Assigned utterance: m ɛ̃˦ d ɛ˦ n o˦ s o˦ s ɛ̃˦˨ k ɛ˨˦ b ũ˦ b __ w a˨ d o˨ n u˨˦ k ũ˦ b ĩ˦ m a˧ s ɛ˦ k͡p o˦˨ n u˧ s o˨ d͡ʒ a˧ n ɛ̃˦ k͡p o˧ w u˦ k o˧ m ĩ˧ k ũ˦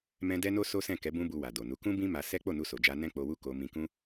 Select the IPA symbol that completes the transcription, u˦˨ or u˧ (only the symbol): u˧